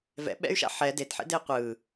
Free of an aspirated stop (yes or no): yes